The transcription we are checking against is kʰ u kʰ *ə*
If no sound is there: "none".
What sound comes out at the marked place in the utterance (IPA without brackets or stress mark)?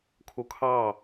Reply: ɑ